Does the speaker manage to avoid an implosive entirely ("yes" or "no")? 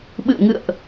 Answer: no